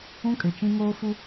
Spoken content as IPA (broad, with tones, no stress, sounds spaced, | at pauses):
ũ˦ kʼ ɪ˨ t͡ʃ ĩ˦ ŋ oː˦ f u˦